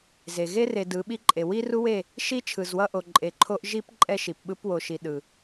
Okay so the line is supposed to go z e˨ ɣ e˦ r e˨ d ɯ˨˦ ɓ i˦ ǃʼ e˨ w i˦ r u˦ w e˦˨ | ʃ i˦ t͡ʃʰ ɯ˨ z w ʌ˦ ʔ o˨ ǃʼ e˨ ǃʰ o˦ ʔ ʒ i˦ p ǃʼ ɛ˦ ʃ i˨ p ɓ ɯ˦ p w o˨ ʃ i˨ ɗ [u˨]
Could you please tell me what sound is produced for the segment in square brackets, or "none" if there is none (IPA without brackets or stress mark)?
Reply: ɯ˨